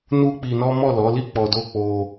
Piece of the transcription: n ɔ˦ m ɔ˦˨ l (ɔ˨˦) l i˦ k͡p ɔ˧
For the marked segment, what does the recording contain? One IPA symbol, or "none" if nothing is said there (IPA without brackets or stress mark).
ɔ˨˦